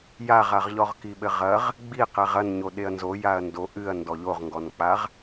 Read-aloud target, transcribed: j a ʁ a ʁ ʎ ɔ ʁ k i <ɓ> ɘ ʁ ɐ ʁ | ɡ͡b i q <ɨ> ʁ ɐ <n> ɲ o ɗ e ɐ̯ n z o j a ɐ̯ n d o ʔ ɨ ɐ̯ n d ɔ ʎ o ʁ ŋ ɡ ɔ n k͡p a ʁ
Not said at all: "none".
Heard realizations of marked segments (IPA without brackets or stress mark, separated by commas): ɓ, ɛ, n